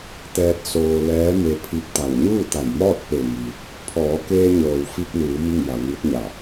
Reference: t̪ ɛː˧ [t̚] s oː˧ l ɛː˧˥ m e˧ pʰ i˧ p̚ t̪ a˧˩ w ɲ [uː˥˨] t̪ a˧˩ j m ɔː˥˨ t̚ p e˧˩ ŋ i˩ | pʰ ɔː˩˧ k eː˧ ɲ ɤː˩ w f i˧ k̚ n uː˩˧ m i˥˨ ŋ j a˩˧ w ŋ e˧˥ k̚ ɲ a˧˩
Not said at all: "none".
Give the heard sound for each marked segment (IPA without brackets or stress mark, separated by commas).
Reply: t̚, uː˥˨